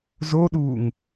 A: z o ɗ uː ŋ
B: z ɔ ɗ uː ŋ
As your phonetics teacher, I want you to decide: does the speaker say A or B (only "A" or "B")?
A